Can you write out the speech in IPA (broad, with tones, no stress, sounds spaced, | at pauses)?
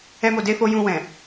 ɛ˦ m o˧ d e˦ f o˦ j ũ˧ w ɛ̃˨